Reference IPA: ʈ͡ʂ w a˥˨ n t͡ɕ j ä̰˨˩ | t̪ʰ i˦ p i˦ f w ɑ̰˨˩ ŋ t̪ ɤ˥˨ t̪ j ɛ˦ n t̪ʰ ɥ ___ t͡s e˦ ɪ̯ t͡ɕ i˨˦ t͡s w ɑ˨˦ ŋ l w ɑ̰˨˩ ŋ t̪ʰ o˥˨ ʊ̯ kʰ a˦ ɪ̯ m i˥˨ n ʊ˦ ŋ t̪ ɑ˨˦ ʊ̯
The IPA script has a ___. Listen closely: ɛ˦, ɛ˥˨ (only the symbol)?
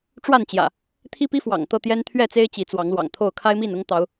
ɛ˥˨